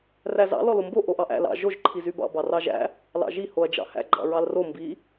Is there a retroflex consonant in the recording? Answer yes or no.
no